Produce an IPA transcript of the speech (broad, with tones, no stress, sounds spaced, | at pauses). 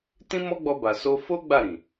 t ĩ˦ m ɔ˦ ɡ͡b ɔ˧ b a˨ s o˧ f o˦ ɡ͡b a˦˨ ɾ ĩ˨